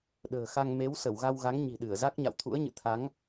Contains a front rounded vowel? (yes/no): no